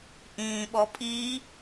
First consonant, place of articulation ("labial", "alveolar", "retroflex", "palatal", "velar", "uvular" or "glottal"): glottal